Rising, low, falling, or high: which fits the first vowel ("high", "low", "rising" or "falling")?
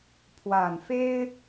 low